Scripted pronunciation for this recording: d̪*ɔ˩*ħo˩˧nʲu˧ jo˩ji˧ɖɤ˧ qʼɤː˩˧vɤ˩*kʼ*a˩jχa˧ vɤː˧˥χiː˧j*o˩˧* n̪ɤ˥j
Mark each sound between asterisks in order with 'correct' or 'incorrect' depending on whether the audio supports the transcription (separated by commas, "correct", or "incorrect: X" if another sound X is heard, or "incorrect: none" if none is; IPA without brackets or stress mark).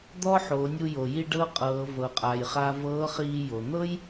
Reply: incorrect: ɔ˥, incorrect: qʼ, incorrect: o˩